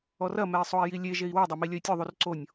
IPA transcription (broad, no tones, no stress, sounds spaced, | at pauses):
ɔ r ɐ m ɛ i̯ sˤ o i̯ j i lʲ e ʒ e i̯ w o dˤ a m i lʲ ɐ i̯ tʲ ɔ ðˤ u r ǀ o nʲ